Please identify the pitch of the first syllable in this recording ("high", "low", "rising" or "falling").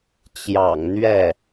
low